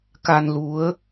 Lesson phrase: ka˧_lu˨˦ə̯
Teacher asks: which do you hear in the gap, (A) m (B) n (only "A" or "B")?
B